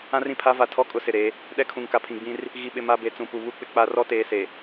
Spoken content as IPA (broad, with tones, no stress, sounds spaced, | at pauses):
ã˦ r ĩ˨ pʰ a˦ v a˨ tʰ ɔ˦ kʼ ʊ˦ s ɪ˨ ɾ e˨˦ | ɗ ɛ˦ kʰ ũ˨ ŋ k a˨ pʰ ĩ˨ ɡ͡b ĩ˦ r | ɣ i˨ ɓ ɪ˨ m a˦ b e˨˦ t͡s ũ˨ p u˨ β u˦˨ k͡p ɪ˦ k͡p a˦ r ɔ˦ t eː˨ s e˨